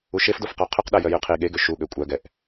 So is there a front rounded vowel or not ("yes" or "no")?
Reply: yes